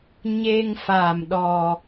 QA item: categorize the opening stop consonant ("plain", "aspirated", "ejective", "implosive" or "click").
implosive